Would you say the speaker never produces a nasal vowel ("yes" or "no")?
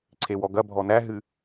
yes